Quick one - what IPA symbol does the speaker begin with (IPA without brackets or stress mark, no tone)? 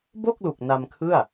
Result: b